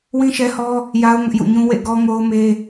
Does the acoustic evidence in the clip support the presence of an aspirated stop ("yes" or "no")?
no